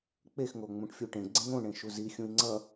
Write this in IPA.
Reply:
k͡p e x ŋ o ŋ͡m ũ ʈ fʲ u ʈ ẽ ɡ͡ǀ ẽ ŋ õ ɳ ẽ ʃ u z i xʲ ũ i̯ ŋ͡ǀ ʌ

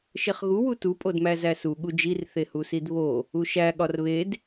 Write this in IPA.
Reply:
ʃ e χ ɣ u w u t u pʼ o d m æ z æ s u ɠ u d͡ʒ i r θ e h u s i d β o | u ʃ æ ɠ ɒ r β e d

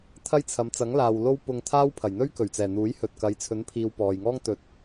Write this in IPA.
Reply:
t̪ʰ ɐ˥ j t͡sʰ ɐ˨˧ m t͡s ɐ˨˥ ŋ l aː˨ w l o˥ w p ʊ˧ ŋ t̪ʰ aː˥ w pʰ ɐ˨˩ j n̪ ɵ˥ ɥ k ɵ˨˩ ɥ t͡s ɛː˨˩ n̪ uː˨˥ j h ɵ˨ t̚ k ɐ˨˧ j t͡sʰ ɵ˨˥ n pʰ iː˨ w p ɔː˨ j ŋ ɔː˥ ŋ t̪ ɵ˨˥ t̚

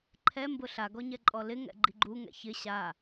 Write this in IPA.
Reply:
ǃʰ ɛ m b ʊ ɬ a ɡ ɔ ɲ ɛ ǃʼ ɔ l ɪ ŋ ɛ̰ ɡ͡ǃ i ɡ͡ǃ u ŋ ɛ̰ ç ɪ ɕ a

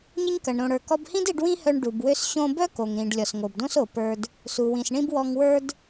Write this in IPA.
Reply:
ɲ ə˧ ɲ k ɐ˩ ɳ ɾ õ˩ ɽ ə˞˩ k ɔ˧ b h ĩ˥ d i˧ ɖ w ĩ˥ h œ˧ ɳ ɖ u˩ b w ø˧ s ɕ õ˧ b œ˥ k o˩ ŋ ɾ ĩ˩ ɖ lʲ ɔ˩ s ŋ o˩ b d õ˥ s o˩ p ə˞˥ d | s u˩ w ĩ˩ s ɳ ĩ˥ b w ɔ˧ ŋ w ə˞˥ d

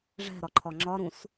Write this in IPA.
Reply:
ʐ ɛ̤ ɾ ɒ ǃʰ ɒ ŋ͡ǁ ɒ ɾ ũ s

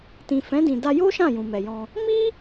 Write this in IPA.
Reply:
t ĩ˨ f ɛ̃˨˦ d ĩ˧ d a˧ j o˦ ʃ ã˦˨ j ũ˨ m ɛ˨ j ɔ̃˧ | m i˦

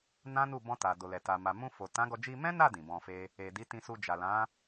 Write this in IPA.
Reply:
n ã˦ n u˦˨ b ɔ̃˧ t a˨ d o˨ l ɛ˨ t a˨ m a˨ m ũ˧ f o˨ t ã˨˦ ɡ ɔ˧ d͡ʒ i˧ m ɛ̃˦ n a˦˨ d ĩ˨ b ɔ̃˧ f e˦ | e˨ d i˨˦ t ĩ˧ s u˧ d͡ʒ a˨ l ã˨˦

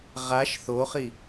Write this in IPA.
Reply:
ʁ a ʃ θ o χ i

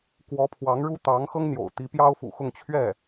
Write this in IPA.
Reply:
k w ɔ˧˥ pʰ w ɑ˧˥ ŋ ɻ u˥ t̪ ɑ˧˥ ŋ x ɤ˥ ŋ n̪ j o̰˨˩ ʊ̯ t̪ i˧˥ p j ɑ˥ ʊ̯ f ṵ˨˩ x ʊ˥˧ ŋ t͡ɕʰ ɥ ɛ˥˩

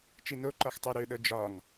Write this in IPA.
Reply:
t͡ʃ i n o ǃ ɒ x tˤ o ɾ ø ɗ ɤ d͡ʒ ɒ ŋ

